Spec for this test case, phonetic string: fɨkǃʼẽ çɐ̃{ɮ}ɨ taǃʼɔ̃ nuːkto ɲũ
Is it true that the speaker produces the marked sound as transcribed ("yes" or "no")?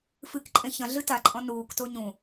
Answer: yes